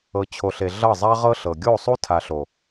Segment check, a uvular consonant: present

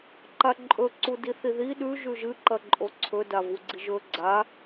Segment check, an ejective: present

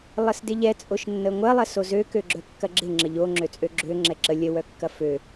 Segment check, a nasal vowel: absent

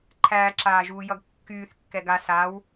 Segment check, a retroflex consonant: absent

